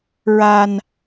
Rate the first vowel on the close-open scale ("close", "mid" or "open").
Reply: open